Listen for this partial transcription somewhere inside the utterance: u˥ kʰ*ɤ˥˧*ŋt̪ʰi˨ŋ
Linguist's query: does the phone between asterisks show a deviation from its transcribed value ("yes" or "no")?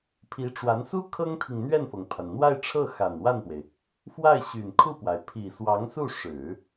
yes